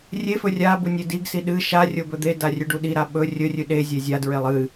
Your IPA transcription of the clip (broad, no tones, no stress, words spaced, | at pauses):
rʲefɵ rʲa bunʲediɡsi ɗɨ ʃa rʲobɵd̪eda rʲʉɖuɗiɾa ɓɵ rʲɵrʲʉ ɗezʲe zʲadɹelˠ ɨ